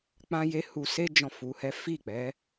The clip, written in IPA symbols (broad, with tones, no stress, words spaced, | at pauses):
k͡pã˦je˦ hu˧se˦ d͡ʒɔ̃˦˨fu˨˦hɛ˦ fi˦˨k͡pɛ˨˦